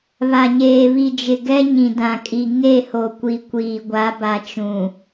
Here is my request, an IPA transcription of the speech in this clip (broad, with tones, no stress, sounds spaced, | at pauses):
β a˨ ɲ eː˨ β i˨ d͡ʒ ɪ˨ ɡ ɛ˦ ɲ ĩ˨ d ã˨ kʼ i˨ ŋ e˦˨ h o˨ kʷ i˨ kʷ iː˨ ɡʷ a˨˦ b a˨ t͡ʃ ũ˨